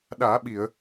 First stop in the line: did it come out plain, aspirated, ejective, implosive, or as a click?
implosive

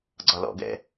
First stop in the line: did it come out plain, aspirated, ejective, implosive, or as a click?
click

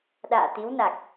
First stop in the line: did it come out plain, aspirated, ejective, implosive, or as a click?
implosive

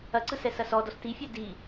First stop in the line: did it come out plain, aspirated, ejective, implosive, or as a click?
click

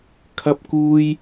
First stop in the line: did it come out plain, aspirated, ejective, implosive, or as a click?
aspirated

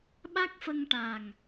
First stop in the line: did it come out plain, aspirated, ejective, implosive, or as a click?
implosive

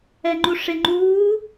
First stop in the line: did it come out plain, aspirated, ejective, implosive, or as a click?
click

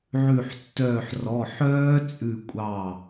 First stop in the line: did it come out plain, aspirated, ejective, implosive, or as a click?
plain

